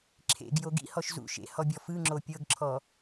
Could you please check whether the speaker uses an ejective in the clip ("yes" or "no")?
no